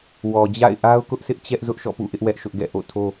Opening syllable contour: low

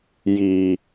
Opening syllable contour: low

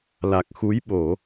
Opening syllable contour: low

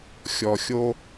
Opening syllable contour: low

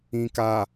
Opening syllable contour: low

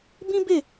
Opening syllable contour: high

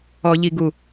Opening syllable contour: low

